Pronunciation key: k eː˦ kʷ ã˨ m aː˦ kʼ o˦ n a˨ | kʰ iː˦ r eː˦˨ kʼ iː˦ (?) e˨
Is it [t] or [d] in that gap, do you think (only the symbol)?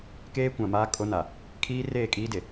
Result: d